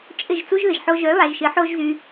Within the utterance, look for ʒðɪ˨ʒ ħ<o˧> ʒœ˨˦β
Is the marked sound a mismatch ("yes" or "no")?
no